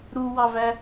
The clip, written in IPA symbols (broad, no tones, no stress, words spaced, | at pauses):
ɾuwɑvæ